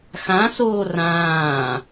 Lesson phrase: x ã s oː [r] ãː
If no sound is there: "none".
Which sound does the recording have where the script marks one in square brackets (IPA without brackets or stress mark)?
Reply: r